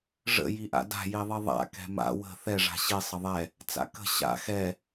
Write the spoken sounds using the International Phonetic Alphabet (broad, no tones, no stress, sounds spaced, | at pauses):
ʐ ə̰ j i ʔ a̰ d a̤ j i ðˤ i ðˤ a̰ k ɛ̤ m a̰ w ə̤ θ ɛ ʐ a̤ ɕ i sˤ ə ðˤ ɛ | t͡s a̰ k ə̤ ɕ a̰ x ɛ